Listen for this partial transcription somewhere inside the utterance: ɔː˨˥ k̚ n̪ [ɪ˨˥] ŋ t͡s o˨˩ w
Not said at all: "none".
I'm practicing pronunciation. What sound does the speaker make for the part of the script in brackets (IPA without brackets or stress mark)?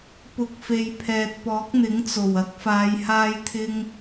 ɪ˨˥